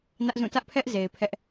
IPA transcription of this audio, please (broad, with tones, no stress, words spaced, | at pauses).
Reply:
nä˦ʔzũ˦˨ tä˦ʔpʰɛ˦ʔze˨ɪ̯ pʰɛ˦ʔ